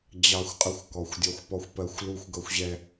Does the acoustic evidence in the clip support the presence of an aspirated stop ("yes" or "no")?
no